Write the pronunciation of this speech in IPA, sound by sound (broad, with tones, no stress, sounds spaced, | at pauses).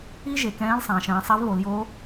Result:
i˥ ʒ e˩˧ k ɛ̃ː˧˥ l sˤ ãː˩ ʃ ɛ̃ː˧ sˤ a˧˥ v β o˩˧ l j o˧˥